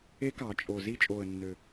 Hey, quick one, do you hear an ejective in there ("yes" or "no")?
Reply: yes